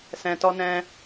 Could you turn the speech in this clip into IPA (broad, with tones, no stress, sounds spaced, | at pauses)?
s ɛ̃˧ t ɔ˦ n ɛ̃˦